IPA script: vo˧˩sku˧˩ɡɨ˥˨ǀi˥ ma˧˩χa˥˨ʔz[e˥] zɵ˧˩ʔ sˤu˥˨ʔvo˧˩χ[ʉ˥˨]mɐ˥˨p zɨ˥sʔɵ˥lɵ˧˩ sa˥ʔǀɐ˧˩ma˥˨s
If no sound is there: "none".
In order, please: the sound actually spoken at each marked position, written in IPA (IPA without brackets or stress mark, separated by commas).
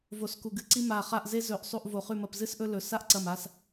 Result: e˥, ʉ˥˨